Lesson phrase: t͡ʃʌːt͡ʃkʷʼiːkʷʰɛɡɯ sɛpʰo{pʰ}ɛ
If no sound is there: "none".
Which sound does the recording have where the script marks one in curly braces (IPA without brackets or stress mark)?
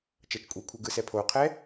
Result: qʰ